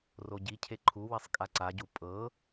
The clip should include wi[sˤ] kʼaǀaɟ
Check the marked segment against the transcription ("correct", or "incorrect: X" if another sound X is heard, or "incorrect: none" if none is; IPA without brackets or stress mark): correct